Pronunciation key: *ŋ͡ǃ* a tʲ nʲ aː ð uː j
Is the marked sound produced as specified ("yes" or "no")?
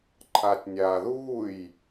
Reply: no